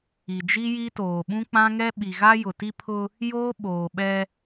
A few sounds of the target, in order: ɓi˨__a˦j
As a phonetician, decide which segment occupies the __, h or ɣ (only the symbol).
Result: ɣ